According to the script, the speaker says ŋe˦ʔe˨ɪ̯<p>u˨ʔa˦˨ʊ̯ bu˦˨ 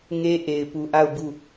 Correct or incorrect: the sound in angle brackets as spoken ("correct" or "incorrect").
correct